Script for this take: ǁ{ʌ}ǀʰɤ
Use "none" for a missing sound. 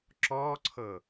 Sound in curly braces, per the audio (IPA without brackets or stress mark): ɔ